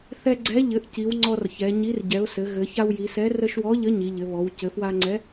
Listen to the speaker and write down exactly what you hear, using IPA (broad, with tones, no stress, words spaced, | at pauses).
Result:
θɛ˧ɡ͡ǀɛ˨˥ ʎɘ˩˧ʔci˩˧w ŋ͡ǀɔ˧rçɛ˩˧ɲi˨˥r ɟɛ˩˧ʊ̯ sɘ˩˧ɣɘ˩˧ ça˧wji˩˧sɛ˨˥ rə˧ʃwɔ˨˥ʎə˨˥ ɲi˩˧ʎɘ˩˧βɔ˩˧w cɘ˩˧fwa˧ŋ͡ǀɛ˨˥